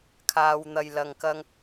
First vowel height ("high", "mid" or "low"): low